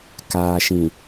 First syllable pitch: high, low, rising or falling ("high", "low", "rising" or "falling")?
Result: low